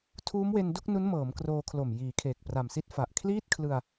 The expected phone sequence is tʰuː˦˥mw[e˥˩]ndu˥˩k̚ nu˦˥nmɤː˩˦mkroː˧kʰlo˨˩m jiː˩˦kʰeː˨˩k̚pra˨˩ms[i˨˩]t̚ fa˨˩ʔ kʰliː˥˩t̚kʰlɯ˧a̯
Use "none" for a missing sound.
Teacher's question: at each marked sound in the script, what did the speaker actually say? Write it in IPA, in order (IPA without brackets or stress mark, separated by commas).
e˧, i˥˩